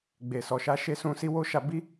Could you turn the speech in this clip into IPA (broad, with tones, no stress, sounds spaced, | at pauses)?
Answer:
ɡ͡b e˨ s ɔ˨ ʃ a˧ ʃ e˧ s ũ˧ s i˧ w o˦ ʃ a˧ b i˦